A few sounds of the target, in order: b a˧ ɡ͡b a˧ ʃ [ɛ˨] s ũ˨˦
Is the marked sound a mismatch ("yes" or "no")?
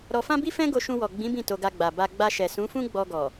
no